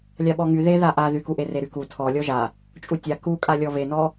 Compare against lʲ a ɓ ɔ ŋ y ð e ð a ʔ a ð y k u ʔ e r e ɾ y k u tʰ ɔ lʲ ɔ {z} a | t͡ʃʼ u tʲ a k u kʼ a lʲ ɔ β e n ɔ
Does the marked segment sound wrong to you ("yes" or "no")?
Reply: yes